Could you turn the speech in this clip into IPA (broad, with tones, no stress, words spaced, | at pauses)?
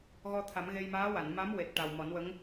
ɣɔ˧t̪ʰa˨˩˦m ɣe˧jmaː˧˥ wa˨˩˨nma˧˥m we˨˩t̚ʈa˨˩w mɔ˨˩˦nwə˧˥ŋ